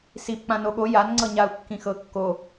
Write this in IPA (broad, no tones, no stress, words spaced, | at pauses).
sip k͡pãnoɠo jan ŋ͡ǀɤɲau̯kːĩxɤ kːo